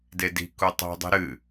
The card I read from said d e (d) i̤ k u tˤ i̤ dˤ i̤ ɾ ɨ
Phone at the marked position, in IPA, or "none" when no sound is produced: d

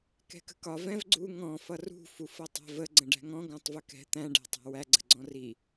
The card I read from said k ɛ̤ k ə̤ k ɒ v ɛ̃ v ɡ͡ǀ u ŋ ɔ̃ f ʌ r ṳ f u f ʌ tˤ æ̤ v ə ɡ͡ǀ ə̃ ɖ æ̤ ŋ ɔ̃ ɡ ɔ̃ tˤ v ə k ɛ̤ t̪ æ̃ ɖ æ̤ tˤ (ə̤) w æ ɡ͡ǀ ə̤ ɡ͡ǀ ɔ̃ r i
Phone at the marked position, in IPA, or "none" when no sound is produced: æ̤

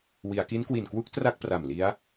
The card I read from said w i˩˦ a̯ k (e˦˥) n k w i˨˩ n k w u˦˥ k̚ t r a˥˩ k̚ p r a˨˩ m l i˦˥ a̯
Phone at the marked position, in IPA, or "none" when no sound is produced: i˦˥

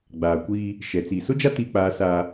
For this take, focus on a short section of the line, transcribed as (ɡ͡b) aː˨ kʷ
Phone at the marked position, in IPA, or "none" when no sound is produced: ɡ͡b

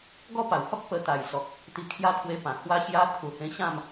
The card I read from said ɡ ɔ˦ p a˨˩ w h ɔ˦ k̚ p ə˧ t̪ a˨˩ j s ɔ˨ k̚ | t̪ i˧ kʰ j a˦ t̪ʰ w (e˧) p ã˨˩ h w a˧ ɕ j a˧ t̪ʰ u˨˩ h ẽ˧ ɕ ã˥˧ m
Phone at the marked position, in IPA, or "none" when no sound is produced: e˧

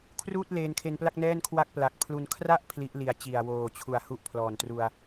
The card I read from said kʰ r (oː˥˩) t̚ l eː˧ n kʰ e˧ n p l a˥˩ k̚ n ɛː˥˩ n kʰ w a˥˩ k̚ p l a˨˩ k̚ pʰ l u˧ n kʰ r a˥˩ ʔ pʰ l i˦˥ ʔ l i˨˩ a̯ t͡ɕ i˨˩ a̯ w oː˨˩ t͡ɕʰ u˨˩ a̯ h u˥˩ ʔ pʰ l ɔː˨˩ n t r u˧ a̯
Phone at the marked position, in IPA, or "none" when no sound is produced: uː˥˩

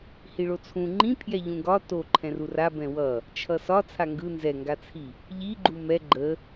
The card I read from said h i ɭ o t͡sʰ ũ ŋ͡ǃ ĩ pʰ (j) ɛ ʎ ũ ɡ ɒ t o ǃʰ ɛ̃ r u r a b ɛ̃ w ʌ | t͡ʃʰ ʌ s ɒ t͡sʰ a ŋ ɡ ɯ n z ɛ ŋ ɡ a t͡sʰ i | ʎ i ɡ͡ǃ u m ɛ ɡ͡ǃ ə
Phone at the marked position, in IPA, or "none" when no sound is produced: j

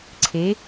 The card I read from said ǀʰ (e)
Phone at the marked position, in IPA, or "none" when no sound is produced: e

